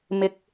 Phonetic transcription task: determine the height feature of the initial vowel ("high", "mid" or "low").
high